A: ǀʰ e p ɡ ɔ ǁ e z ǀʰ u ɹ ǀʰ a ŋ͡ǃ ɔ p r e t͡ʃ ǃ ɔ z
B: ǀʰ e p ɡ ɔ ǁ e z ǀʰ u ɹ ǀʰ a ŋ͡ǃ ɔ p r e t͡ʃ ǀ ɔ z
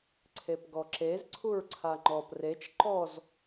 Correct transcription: A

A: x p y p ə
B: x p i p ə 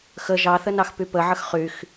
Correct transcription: A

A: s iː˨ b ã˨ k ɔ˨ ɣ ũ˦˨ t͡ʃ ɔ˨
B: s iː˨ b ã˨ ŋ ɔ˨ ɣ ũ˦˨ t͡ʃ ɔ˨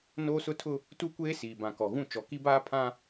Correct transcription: A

